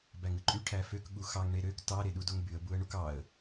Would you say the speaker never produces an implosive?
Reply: no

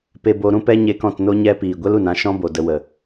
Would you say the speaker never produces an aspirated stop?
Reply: yes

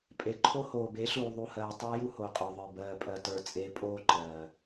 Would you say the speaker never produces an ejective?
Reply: no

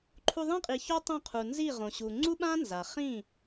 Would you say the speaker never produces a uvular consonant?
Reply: no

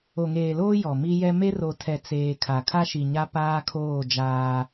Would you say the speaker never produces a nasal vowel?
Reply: yes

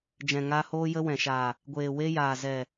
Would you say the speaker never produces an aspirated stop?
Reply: yes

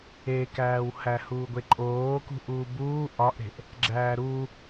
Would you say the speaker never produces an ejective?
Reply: no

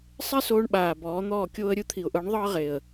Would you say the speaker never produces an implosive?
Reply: no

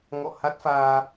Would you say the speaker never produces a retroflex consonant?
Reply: yes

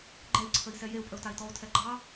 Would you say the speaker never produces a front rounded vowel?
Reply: yes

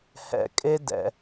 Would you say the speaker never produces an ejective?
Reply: no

